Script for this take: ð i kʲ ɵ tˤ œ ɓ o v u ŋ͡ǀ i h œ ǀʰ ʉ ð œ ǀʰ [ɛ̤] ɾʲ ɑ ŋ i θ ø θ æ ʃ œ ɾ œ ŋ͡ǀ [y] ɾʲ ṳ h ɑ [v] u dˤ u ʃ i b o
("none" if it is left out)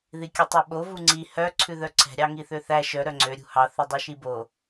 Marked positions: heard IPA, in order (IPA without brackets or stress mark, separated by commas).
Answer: ɛ̤, ø, θ